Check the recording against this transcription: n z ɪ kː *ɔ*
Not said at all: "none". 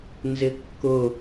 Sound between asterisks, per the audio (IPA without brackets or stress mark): ʊ